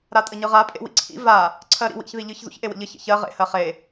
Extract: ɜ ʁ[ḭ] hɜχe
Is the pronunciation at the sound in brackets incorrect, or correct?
incorrect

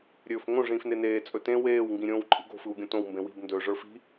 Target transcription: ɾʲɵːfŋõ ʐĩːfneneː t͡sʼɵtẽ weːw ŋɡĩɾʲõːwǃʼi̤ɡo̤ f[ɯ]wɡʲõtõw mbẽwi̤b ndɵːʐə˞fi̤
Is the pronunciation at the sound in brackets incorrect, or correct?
correct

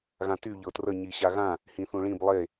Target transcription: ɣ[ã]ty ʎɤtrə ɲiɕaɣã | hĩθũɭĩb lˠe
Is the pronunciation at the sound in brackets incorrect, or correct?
correct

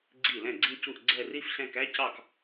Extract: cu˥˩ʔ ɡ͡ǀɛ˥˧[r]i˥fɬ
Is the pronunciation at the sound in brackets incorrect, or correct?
correct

